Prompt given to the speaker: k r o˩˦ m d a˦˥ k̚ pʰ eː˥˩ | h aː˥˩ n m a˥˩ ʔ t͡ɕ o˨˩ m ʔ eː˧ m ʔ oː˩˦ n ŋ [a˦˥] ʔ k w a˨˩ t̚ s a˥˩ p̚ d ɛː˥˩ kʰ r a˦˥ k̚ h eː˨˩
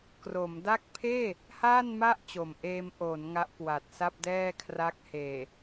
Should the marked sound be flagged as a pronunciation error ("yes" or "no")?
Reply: no